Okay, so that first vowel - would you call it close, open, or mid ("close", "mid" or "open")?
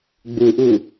close